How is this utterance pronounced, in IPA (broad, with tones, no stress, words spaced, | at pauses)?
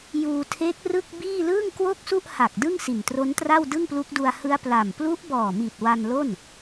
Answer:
juː˧ tʰe˦˥k̚ rɯ˥˩k̚biː˥˩ lɯː˥˩ŋkwo˥˩k̚su˥˩ʔha˨˩k̚ dɯ˥˩ŋ si˨˩ntro˦˥n tra˥˩wdɯ˥˩ŋplu˦˥k̚du˧a̯ hɯ˦˥a̯pla˨˩m plu˦˥ʔbɔː˨˩mi˨˩t̚ wa˧nlo˥˩n